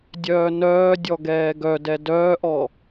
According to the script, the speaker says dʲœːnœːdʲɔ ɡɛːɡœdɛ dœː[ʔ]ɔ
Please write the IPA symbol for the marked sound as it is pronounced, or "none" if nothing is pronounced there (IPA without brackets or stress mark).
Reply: ʔ